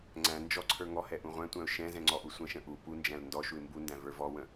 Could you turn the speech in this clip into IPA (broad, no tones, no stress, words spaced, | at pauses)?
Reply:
ŋ͡ǀæ̃ nd͡ʒɔ ǀʰə˞ŋɔhɛ ʔũʁʷæ̃tʷæ̃ʊ̯ ʃɛ̃zɛ̃ ŋ͡ǀɔʔusʷə̃ʃə̃ ʔu pund͡ʒæ̃l ndɔ ʃuɪ̯mbundæ̃ və˞vɔwə̃